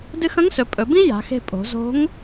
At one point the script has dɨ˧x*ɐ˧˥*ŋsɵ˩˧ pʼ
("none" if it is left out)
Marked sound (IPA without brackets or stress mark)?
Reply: ɐ̃˧˥